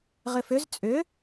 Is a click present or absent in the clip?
absent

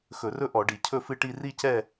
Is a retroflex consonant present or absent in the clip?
present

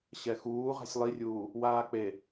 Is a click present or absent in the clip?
absent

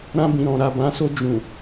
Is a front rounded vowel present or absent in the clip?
absent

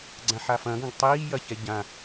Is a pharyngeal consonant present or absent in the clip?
present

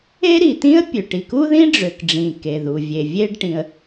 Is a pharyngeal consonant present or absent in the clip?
absent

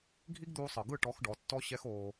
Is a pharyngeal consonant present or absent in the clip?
absent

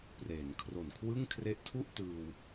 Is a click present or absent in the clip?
absent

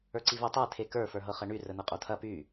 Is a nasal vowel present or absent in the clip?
absent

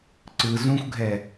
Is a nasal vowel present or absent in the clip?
present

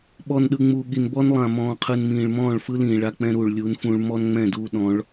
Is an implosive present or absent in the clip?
present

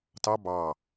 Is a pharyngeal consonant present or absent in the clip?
absent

